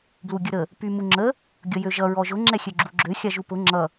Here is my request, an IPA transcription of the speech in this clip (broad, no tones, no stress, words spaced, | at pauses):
bluɡʲəɾə | pymuŋ͡ǁə | ɡʲʌjøʒʌ ɹɔʒʊ ŋ͡ǁɛxʲøɡ͡ǁuɡ͡ǁø xʲaʒupʊ ŋ͡ǁʌ